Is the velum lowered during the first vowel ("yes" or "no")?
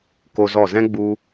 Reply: no